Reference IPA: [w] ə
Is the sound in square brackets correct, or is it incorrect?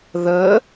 incorrect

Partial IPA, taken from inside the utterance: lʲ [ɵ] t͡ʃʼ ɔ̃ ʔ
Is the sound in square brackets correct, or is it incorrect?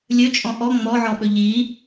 correct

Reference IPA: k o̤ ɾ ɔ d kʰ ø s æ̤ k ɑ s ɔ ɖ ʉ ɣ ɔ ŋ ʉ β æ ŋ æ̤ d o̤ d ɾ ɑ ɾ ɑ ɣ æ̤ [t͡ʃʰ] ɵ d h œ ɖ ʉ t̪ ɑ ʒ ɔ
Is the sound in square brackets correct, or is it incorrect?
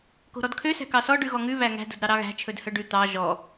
correct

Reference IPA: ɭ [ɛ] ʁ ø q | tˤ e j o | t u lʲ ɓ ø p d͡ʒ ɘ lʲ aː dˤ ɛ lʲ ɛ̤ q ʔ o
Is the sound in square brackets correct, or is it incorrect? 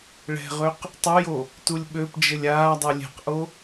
incorrect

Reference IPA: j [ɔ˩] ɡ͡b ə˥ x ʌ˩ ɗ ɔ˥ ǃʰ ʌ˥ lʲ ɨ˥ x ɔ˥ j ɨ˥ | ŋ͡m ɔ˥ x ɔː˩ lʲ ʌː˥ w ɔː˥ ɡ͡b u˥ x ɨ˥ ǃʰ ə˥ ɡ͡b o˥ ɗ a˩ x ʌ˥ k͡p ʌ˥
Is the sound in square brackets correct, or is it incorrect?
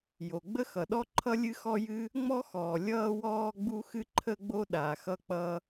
incorrect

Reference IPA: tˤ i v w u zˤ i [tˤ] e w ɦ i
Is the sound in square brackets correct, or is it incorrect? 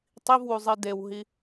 incorrect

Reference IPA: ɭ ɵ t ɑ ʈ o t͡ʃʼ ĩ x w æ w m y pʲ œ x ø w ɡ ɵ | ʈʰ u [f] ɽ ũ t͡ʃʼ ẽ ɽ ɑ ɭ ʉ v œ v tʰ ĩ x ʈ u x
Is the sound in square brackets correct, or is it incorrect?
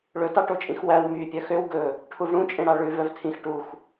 incorrect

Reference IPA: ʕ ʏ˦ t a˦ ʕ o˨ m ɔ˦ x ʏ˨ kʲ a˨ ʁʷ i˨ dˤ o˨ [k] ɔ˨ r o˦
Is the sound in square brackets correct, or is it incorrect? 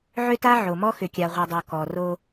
correct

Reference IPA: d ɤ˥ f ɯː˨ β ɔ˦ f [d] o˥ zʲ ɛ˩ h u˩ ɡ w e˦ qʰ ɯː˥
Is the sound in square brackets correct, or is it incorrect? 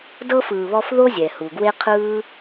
incorrect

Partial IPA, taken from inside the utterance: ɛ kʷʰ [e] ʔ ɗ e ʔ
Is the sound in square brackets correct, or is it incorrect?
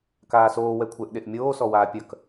incorrect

